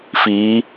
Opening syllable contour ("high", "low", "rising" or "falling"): rising